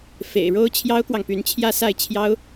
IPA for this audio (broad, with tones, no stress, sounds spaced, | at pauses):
f ḛ˨˩ ɪ̯ ɻ o˥ ʊ̯ t͡ɕʰ j ɑ˥ ʊ̯ k w ɑ˨ ŋ p y˧˥ n t͡ɕʰ j ä˥˧ s a˥˩ ɪ̯ t͡ɕʰ j ɑ˥ ʊ̯